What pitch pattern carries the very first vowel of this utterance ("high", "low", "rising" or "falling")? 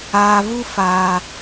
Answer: low